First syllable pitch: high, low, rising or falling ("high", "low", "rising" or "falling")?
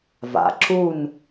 low